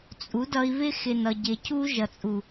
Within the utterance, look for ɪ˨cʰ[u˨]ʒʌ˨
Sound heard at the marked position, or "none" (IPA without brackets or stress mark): u˦